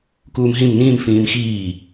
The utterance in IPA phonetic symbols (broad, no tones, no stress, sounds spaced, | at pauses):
k uː m ɦ ĩ m n ĩː m f ĩː m x iː